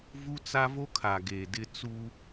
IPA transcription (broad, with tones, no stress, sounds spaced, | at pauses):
v u˦ t͡s a˦ v o˦ kʰ a˨ ɡ e˨ d ɪ˦ t͡s u˦